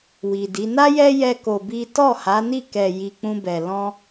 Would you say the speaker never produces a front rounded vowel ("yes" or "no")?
yes